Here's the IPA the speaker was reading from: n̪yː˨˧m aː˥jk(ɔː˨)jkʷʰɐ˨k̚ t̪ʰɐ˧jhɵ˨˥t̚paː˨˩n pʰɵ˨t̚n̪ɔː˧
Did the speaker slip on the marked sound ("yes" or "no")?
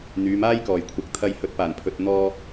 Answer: yes